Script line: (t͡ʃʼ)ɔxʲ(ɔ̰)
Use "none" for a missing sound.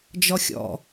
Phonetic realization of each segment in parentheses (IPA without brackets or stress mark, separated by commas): d͡ʒ, ɔ̰